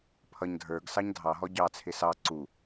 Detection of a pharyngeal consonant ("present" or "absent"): absent